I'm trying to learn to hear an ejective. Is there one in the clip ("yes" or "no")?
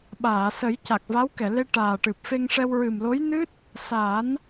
no